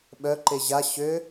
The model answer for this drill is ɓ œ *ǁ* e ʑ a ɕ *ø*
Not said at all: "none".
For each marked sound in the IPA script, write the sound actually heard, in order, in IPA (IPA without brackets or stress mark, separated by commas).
ǃ, ø